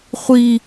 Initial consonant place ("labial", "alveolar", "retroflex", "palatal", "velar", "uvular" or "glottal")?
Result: uvular